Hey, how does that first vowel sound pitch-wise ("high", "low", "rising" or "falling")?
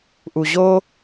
low